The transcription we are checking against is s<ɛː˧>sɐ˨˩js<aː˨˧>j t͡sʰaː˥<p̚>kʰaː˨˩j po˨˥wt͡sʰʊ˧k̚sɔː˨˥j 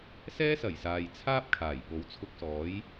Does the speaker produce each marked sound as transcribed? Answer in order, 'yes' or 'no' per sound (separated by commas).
no, no, yes